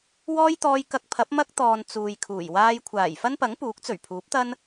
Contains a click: no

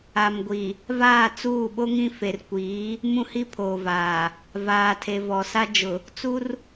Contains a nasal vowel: yes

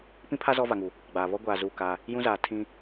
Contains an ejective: no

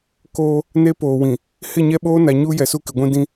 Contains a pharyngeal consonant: no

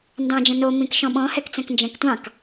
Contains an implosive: yes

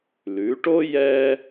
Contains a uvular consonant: no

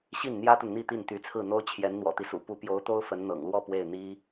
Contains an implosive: no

